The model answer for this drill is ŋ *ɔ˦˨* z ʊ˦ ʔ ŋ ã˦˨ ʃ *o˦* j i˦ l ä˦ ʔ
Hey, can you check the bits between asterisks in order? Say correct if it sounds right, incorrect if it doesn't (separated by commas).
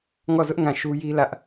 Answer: correct, incorrect